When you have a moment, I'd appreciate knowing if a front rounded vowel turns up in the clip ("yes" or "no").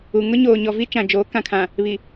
no